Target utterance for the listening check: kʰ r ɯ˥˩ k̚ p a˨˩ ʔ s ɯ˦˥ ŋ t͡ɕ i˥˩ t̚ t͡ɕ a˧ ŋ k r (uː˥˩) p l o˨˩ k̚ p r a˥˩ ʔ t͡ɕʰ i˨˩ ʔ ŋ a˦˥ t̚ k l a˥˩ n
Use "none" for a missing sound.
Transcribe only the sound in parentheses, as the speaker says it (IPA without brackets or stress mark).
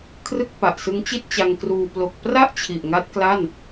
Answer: uː˧